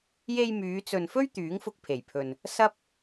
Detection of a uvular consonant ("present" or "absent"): absent